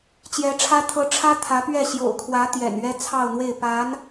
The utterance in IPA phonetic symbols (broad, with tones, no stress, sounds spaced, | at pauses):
t͡ɕ j ɛ˧˥ ʈ͡ʂʰ ä˥ t̪ʰ ɤ˧˥ ʈ͡ʂʰ ä˥ t̪ʰ ä˧˥ p ɥ ɛ˥˩ ɕ j o̰˨˩ ʊ̯ kʰ w ä˧˥ t̪ j ɛ̰˨˩ n ɥ ɛ˥ t͡sʰ ɑ˥˧ ʊ̯ n̪ w e˥˩ ɪ̯ p a˧˥ n